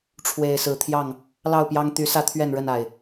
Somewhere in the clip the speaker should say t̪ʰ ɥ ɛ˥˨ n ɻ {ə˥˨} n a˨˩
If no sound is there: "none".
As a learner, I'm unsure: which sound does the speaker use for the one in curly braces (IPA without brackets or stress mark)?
ə˥˨